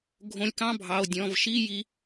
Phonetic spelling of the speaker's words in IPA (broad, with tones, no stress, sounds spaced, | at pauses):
ɡʱ õ˧ lʲ k ɑ̃˥˧ bʱ ɑ˩˧˩ o̯ dʲ ɔ̃˩˧˩ v ʃ i˥˧ j i˧